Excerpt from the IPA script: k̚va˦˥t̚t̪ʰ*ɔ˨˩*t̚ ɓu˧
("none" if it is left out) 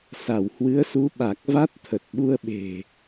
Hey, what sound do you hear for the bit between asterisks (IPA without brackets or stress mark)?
ə˨˩